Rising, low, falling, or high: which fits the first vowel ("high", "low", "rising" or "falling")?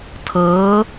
rising